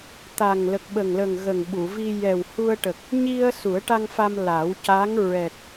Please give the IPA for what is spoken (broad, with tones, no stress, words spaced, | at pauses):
t̪a˨˩ŋ lə˨˩k̚ɓə˨˩ŋlə˨˩ŋ ɣə˨˩ŋ ɓu˨˩˨vi˧ jɛ˨˩w hu˧ə̯ʈə˨˩k̚ | ɲi˧ə̯ su˨˩˦ə̯ʈa˧ŋfa˧m la˨˩˦wca˧˥ŋ ɹɛ˨˩t̚